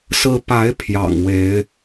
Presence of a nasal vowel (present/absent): absent